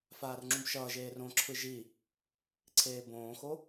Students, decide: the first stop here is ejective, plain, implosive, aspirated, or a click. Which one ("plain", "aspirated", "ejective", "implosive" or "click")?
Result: click